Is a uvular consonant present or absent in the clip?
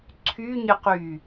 present